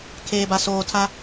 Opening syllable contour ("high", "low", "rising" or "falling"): low